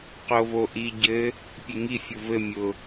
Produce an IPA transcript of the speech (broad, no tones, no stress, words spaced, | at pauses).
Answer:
qovoʔi ɟɘ | pʲeŋi fʲʊvɘ mʲʊ